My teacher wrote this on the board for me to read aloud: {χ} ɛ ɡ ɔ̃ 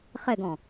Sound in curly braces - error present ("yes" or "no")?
no